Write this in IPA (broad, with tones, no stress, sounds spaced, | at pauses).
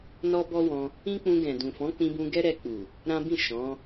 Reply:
n ɔ˦ b ɔ˦ w ɔ̃˧ | ĩ˦ k͡p ũ˧ ɡ ɛ̃˨ d ũ˨ f ɔ̃˨˦ k͡p ĩ˧ b ũ˧ ɡ ɛ˦ ɾ ɛ˧ k͡p u˨ | ɾ ã˦ b ĩ˦˨ ʃ ɔ̃˨˦